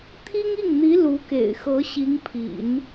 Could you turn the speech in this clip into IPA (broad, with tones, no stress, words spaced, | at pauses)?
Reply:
t̪ʰi˥ŋi˥˩ŋn̪i˧˥ lu˧˥ kḛ˨˩ɪ̯xɤ˧˥ɕi˧˥ŋpʰḭ˨˩˦n